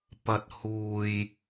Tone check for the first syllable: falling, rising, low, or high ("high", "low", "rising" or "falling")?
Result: low